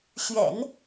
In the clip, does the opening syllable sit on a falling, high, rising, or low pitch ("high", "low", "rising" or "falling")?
low